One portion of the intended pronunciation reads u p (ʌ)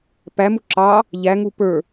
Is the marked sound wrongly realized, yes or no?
yes